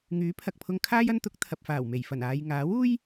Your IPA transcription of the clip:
ŋ yː˨˥ pʰ ɐ˨ k̚ pʰ ʊ˧ ŋ kʰ aː˥ j ɐ˥ n t̪ ʊ˨˥ k̚ t̪ʰ ɐ˨ p̚ f aː˨˩ w m e˨˩ j f ɐ˨˩ n aː˨ j ŋ aː˨˥ w uː˥ j

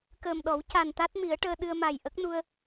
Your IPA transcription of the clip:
k əː˨˩ m ɗ ɔ˨˩˦ w c a˨˩ n t̪ a˦˥ t̚ m i˨˩˦ ə̯ ʈ əː˧ ɗ ɨ˧ ə̯ m a˨˩ j ʔ ə˦˥ k̚ n u˧ ə̯

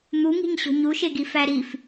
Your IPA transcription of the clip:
n̪ u ŋ i̤ ɲ ɕ o̤ ɲ u ʃ e ɡ i f æ ɾ i f

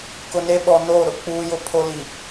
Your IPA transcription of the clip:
k ʊ˨ n e˦ ɓ ɔ˨ n oː˦˨ ɾ ʊ˦ k͡p uː˦ j ʊ˦ pʰ o˦ l i˨

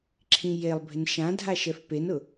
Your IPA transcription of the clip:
ǁʰ ĩ j e lˠ bʱ ɪ n ʃ ã dʱ a ʃ ɛ f p e n ʊ

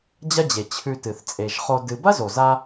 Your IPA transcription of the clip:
d͡ʑ ɐ˥ d͡ʑ e˩ t͡ɕʰ ʉ˧ t ɨ˩ θ t͡sʼ e˩ ʒ χ o˧ d ɨ˧ b ɐ˥ z o˩ z a˧

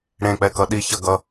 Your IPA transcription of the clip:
ɽ ẽ k͡p ɛ k ʌ ɗ i ç ʌ ɡ ʌ

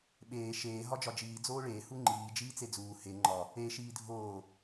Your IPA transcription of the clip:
ɓ eː ʃ eː ɦ ɒ d͡ʒ ɒ d͡ʒ iː d͡z oː ɭ eː h u ŋ͡ǃ iː d͡ʒ iː t͡s e d͡z uː h e ŋ͡ǃ ɒ | e ʃ iː dʱ oː

